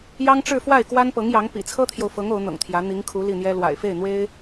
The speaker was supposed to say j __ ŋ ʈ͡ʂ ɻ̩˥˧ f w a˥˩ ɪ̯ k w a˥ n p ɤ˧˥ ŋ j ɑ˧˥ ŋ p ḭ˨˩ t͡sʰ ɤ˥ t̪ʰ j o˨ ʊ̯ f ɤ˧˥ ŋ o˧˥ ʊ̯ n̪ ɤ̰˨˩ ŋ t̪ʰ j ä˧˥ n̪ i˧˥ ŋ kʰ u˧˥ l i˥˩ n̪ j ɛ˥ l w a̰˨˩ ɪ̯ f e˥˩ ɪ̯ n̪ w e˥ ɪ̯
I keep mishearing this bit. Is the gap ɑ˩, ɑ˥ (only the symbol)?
ɑ˥